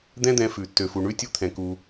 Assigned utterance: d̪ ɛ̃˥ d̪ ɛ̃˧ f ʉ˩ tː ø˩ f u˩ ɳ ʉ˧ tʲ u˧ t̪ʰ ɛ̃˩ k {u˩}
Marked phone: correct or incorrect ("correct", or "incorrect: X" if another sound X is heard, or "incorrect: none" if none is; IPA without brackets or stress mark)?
correct